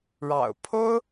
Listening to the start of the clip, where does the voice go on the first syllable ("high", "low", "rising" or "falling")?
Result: low